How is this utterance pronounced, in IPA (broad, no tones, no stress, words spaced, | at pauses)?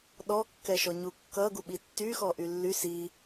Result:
ɗɔ kːɛʃɔɲukːʌ ɡuɓitːyxɔ ʔylːy si